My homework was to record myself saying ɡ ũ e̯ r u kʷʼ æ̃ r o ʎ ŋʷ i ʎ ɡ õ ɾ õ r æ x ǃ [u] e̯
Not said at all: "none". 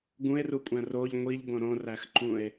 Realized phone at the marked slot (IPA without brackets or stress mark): ũ